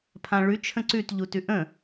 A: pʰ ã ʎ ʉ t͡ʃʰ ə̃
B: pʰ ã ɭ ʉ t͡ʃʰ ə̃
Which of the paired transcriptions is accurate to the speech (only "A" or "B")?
B